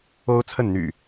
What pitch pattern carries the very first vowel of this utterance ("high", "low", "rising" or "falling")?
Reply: high